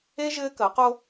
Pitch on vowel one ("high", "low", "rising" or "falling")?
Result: high